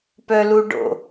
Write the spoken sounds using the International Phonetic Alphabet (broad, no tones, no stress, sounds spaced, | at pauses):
p œ l u ɖ o̰